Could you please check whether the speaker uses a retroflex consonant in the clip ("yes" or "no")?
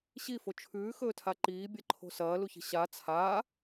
no